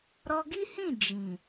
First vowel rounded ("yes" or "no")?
yes